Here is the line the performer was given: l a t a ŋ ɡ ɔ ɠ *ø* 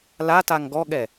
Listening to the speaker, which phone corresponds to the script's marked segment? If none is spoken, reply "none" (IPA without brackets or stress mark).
ɛ